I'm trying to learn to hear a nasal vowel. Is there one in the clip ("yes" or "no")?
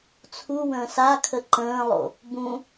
yes